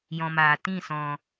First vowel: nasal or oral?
nasal